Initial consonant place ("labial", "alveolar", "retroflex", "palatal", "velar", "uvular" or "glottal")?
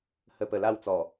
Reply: glottal